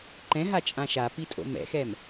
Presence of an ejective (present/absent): present